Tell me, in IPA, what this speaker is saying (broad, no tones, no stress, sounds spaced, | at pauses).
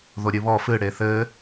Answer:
ð o ɾʲ ɨ β ɔ f ɨ ɽ e θ ɘ